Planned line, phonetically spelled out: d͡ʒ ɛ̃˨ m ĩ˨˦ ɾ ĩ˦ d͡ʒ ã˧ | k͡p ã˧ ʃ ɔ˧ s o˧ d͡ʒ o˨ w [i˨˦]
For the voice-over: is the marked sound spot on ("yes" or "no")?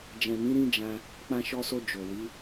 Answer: yes